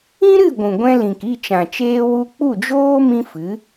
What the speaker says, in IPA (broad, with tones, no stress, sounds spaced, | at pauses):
ĩ˦ ɾ ɨ˦˨ ɡʷ ũ˨ ɡʷ ɛ̃˧ l ĩ˨ k i˦˨ t͡ʃ ã˨ t͡ʃ eː˧ w u˧ k͡p u˦˨ d͡ʒ oː˦ m ĩ˦ f ɨ˨˦